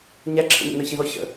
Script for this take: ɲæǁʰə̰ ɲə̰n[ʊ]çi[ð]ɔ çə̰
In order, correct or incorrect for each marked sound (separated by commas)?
incorrect, correct